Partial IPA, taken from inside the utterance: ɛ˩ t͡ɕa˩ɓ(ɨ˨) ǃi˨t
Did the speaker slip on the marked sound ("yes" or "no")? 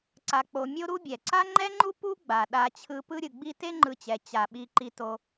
yes